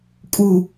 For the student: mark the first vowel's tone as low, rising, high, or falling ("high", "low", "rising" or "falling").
low